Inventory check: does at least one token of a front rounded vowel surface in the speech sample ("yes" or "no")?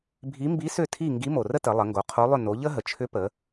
yes